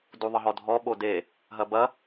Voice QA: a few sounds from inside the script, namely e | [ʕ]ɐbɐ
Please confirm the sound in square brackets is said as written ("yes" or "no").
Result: no